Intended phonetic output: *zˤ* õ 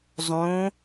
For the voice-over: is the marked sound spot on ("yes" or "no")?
yes